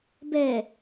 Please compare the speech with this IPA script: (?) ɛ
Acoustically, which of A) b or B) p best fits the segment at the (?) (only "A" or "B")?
A